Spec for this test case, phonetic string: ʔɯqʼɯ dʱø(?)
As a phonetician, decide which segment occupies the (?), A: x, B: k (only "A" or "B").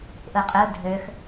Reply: A